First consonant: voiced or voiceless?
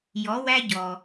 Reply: voiced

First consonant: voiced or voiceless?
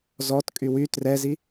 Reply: voiced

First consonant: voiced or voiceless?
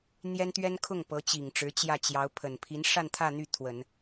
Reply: voiced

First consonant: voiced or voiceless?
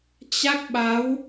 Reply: voiceless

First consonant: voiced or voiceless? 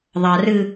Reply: voiced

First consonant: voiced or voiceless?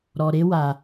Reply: voiced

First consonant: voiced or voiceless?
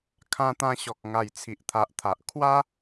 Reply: voiceless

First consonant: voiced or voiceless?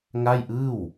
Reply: voiced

